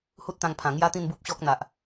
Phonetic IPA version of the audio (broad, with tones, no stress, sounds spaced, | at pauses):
h u˦ t̚ t̪ ã˧ ŋ pʰ ã˨˩ ŋ j a˦ t̪ ĩ˥˧ n b u˦ p̚ ɕ ɔ˦ k̚ n̪ a˨ ʔ